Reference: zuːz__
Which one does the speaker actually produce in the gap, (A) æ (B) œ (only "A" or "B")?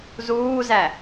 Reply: A